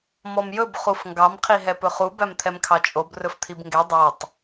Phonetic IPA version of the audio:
m ɔ m j ɵ b χ u f ŋ ɡ ɑ m qʰ i ɦ ɛ p ɵ χ u b æ m t̪ʰ ɛ m kʰ ɑ t͡ʃʼ o b r ɵ f t̪ʰ i b ŋ ɡ ɛ dˤ o tˤ

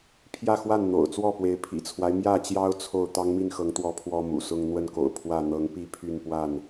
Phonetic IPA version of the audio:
pʰ j ä˥˨ x w a˥˨ n n̪ o̰˨˩ ʊ̯ t͡s w ɔ˥˨ p w e˨˦ ɪ̯ pʰ ḭ˨˩ t͡sʰ w a˦ ɪ̯ m j ä˥˨ t͡ɕ j ɑ˦ ʊ̯ t͡sʰ o˥˨ ʊ̯ t̪ ɑ˦ ŋ m i˥˨ n x ɤ˨˦ ŋ t̪ w ɔ˨˦ pʰ w ɔ˦ m ṵ˨˩ s ʊ˦ ŋ n̪ w ə˥˨ n k o̰˨˩ ʊ̯ pʰ w ä˥˨ n̪ ɤ˨˦ ŋ p i˥˨ pʰ y˥˨ n p w a˥˨ n

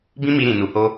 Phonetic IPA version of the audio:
b ĩ˦ m i˧ ɾ ĩ˨ n u˨ h o˧

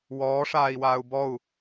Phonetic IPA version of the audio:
w ɔː ʂ aː i̯ w aː u̯ b ɔ u̯

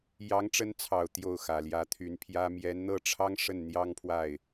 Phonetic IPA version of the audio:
j ɑ˧˥ ŋ ʈ͡ʂ ə˧˥ n t͡sʰ ɑ˨˩ ʊ̯ t̪ j o˥˩ ʊ̯ x ä˨˩ l j ä˧˥ t̪ʰ y˧˥ n pʰ j ä˥ m j ɛ˧˥ n n̪ ɤ˥˩ ʈ͡ʂʰ ɑ˥ ŋ ʂ ə˥˩ n n̪ j ɑ˥ ŋ pʰ w a˥˩ ɪ̯

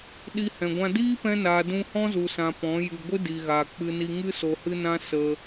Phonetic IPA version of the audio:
ɗ i˧ h ɛ̃˨ ɡʷ ã˧ d iː˦ p ɛ̃˧ n aː˨ d ũ˧ h ɔ̃˦ z u˨ s ã˨ p ɔ̃˨˦ j ɨ˨ ɡʷ ɨ˦ d i˨ ɣ aː˨ k͡p ɨ˧ n i˧ ŋ ɨ˦ s o˨ h ɨ˧ n ã˧ s ə˧

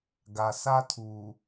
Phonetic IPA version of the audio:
ɡ a˨ s a˦ tʰ uː˨

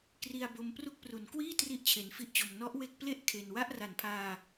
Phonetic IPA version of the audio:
k r i˧ a̯ b o˦˥ m p r u˥˩ k̚ p r u˩˦ n k w iː˥˩ t r i˥˩ ʔ t͡ɕʰ e˧ n f i˥˩ ʔ t͡ɕ o˧ m n ɔ˦˥ ʔ w e˦˥ k̚ p l e˥˩ ʔ kʰ e˧ n w a˥˩ ʔ r a˨˩ n pʰ aː˧

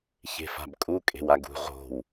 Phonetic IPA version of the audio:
ç e̤ f a̤ b kʼ u kʼ e̤ w a ɡ ṳ ʁ o̤ w

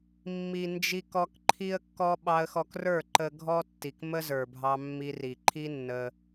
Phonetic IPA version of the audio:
mː i˨ n d͡ʒ i˧ k ɔ˧ k ǃʰ i˦ ə̯ kː ɔ˦ ɓ ɑ˧ ə̯ x ɔ˧ k r ə˞˦˨ ǃ ə˧ ɡʱ ɔ˦ tː i˨ k m ə˦ z ə˞˨ bʱ ɑ˧ mː i˧ r i˨ ǃʰ i˦ nː ə˧

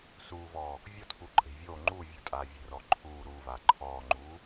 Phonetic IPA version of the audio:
s uː v ɔː | vʲ ɔ tʰ uː ǃʼ e̤ vʲ oː ŋ͡ǃ uː vʲ ṳ tʼ aː vʲ e̤ r ɔː ǃʰ uː ɾ uː v aː ǃʰ ɔː ŋ͡ǃ uː

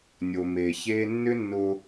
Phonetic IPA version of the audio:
nʲ o˨ m eː˨ ç eː˦ nː ʏ˦ nː ʊː˧

